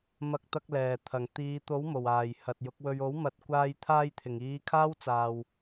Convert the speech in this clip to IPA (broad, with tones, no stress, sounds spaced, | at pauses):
m ɐ˧ k̚ t̪ ɐ˧ k̚ l ɛː˨˩ t̪ʰ ɐ˨˩ ŋ t̪ iː˨˧ t̪ o˨˥ w m o˨˩ w aː˨˩ j h ɐ˨ t̚ j ʊ˨˥ k̚ w ɵ˧ ɥ o˨˥ w m ɐ˨ t̚ kʷ aː˧ j t̪ʰ aː˧ j t̪ʰ ɪ˨˩ ŋ iː˨˧ kʰ aː˥ w t͡s aː˨ w